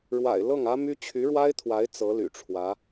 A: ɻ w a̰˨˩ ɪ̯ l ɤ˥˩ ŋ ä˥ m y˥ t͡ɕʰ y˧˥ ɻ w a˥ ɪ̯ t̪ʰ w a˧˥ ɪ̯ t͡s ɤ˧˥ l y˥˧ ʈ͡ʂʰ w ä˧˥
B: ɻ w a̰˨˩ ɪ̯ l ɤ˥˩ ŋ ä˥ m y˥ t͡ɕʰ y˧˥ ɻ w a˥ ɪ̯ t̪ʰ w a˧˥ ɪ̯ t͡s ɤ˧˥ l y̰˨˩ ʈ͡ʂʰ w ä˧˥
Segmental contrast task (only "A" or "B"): B